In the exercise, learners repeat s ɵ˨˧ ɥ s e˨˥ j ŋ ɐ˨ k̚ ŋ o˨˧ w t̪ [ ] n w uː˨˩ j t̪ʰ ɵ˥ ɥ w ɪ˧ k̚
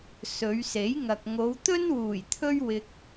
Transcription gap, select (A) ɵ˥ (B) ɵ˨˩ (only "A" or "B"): A